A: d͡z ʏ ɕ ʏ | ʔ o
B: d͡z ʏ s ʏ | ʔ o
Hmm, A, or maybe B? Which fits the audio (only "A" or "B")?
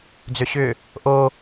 A